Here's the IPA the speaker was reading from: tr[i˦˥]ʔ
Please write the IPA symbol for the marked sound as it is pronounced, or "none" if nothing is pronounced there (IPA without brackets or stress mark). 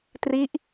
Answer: i˦˥